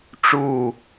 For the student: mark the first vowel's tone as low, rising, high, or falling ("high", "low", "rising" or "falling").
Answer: falling